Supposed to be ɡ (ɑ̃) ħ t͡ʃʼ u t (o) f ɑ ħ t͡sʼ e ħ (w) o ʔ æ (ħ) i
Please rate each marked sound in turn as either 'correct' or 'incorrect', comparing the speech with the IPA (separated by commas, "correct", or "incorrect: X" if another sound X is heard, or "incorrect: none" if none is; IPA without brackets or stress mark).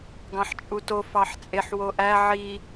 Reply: correct, correct, correct, incorrect: ʕ